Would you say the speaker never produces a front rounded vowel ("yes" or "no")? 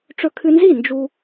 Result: yes